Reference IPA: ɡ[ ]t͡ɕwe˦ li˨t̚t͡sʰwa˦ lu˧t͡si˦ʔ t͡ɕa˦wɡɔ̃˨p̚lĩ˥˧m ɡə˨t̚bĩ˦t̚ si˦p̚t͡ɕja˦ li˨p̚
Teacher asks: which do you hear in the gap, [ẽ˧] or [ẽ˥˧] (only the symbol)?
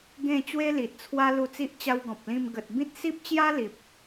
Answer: ẽ˥˧